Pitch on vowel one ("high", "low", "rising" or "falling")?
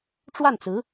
falling